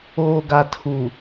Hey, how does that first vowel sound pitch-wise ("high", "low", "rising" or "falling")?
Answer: low